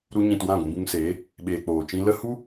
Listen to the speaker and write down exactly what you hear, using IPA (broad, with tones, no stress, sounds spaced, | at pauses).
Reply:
ɾ u˧ ɲ ĩ˨ t w ã˦˨ ɡʷ ĩ˧ b ũ˧ ŋ s eː˨˦ | ɓ eː˨ k͡p oː˨ t͡ʃ ĩ˧ l ə˦ h u˦